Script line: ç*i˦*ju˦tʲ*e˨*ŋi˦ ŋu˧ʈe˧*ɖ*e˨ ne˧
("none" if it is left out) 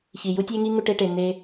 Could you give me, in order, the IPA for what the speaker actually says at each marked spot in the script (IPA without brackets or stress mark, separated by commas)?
i˨, e˦, ʈ